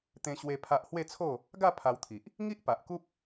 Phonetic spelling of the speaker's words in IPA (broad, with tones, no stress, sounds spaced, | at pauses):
t̪ ẽ˧ ɕ w e˧ pʰ a˦ ʔ h w e˥˧ t͡sʰ o˥˧ | ɡ a˥˧ pʰ a˧ w t̪ʰ i˨ ʔ | ŋ i˦ ʔ p a˨ ʔ k u˦ p̚